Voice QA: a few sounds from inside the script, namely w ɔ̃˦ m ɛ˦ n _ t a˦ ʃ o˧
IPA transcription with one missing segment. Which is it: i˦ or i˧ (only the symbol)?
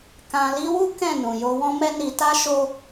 i˧